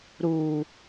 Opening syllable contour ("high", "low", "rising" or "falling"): low